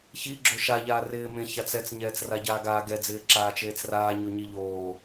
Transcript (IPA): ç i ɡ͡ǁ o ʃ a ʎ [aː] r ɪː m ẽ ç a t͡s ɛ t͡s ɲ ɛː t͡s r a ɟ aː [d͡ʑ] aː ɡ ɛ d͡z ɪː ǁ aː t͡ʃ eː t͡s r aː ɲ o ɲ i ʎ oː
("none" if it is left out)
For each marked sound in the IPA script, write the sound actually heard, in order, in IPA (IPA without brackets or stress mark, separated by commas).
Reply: aː, ɡ